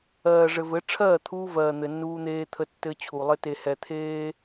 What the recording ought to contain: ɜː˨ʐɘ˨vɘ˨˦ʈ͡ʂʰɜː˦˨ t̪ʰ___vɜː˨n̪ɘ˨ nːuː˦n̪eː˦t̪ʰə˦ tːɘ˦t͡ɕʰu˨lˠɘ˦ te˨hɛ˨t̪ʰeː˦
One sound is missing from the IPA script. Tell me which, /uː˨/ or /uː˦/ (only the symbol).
uː˦